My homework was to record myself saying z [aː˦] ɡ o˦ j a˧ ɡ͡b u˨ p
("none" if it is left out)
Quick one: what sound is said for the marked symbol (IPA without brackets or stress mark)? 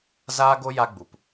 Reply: aː˦